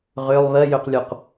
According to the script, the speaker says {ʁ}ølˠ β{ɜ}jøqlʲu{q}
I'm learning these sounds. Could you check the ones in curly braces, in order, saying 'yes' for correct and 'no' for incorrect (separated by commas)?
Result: yes, yes, yes